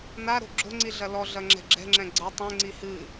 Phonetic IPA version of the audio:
n a ɾ o̤ ɡ͡ǁ o̤ ŋ͡ǀ i ɮ ɐ l ɔ ɮ ɐ ŋ͡ǁ ɛ̤ ɡ͡ǁ ɛ̤ ŋ͡ǁ ɛ̃ ɡ͡ǀ ɐ tˤ ɛ̃ ŋ͡ǀ i h ɨ

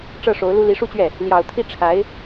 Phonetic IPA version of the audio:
ʈ͡ʂ ɤ˥˩ ʂ o˧˥ ʊ̯ l u˥ l i˧˥ ʂ u˥˧ t͡ɕ ɥ ɛ˥˩ | l j ɑ˨˩ ʊ̯ t̪ʰ i˥˩ ʈ͡ʂʰ a˧˥ ɪ̯

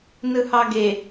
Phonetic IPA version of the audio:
n ɯ h ɑ ɡ e

